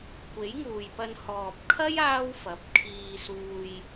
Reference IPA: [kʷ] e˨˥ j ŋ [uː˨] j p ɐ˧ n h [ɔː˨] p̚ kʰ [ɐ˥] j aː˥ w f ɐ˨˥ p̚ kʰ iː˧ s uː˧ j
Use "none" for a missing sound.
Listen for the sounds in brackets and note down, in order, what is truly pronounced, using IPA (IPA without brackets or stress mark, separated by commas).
kʷ, uː˨, ɔː˨, ɐ˥